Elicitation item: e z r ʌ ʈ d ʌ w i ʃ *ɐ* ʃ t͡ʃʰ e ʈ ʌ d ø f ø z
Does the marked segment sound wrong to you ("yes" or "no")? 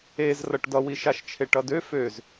yes